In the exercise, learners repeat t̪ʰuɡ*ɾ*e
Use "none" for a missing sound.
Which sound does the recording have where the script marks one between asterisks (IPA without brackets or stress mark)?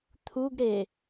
ɾ